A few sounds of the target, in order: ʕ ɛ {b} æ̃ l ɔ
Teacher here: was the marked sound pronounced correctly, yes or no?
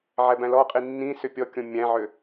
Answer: yes